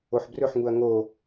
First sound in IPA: o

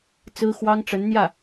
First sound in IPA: t͡s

